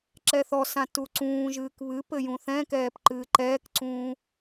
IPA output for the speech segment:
ǁ ɛ θ ɔ s ã t u ǀ ũː ʒ ɨː k β ɨ p ɘ j ũ θ ɛ̃ k ɛː p ǃ ɨː ǃ ɛː k ǀ ũː

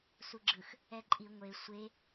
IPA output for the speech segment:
s u ɡ͡ǁ ɯ x | ɛ ǃʼ i ŋʷ e sʷ e

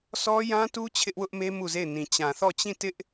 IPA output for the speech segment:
s ɔ˦ j ã˦ t u˦ t͡ɕʰ ɪ˦ ʔ w ʊ˦ ʔ m e˦ m u˦˨ z e˦˨ ɪ̯ n ĩ˨ t͡ɕ ã˨ θ ɔ˦˨ t͡ɕ ĩ˦˨ t ɪ˦ ʔ

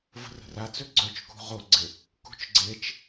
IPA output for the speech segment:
v ə̤ r ə̤ r a t͡s ø ɡ͡ǀ œ t͡ʃ k ṳ ʁ o ɡ͡ǀ ɪ | k ṳ t͡ʃ ɡ͡ǀ e t͡ʃ

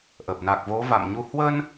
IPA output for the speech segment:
ʔ ə˨˩ p̚ n a˨˩ k̚ v o˨˦ v a̰˧˨ m ɲ u˧ h w ə˧ n

